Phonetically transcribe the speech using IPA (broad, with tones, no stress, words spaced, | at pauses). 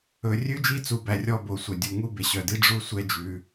ɵ˨rʲʉ˥d͡ʒi˦t͡su˨ bæ˨rʲɔ˦ bo˨sʷœ˩dʲu˨ ŋu˥ be˩ɕœ˩di˥ ɖ͡ʐu˦sʷɛ˦d͡ʒʉ˨